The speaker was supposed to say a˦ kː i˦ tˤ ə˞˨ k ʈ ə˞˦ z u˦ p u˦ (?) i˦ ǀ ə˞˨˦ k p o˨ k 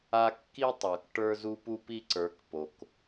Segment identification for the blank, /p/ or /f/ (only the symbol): p